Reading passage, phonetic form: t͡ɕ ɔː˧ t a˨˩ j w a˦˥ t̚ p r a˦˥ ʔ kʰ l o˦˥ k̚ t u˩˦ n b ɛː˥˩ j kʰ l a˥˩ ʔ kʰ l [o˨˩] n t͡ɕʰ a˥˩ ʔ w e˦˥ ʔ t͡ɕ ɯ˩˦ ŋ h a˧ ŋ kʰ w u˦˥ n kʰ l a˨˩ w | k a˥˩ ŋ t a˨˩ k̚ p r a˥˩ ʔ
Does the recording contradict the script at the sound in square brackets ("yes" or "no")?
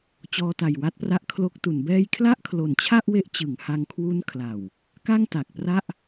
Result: no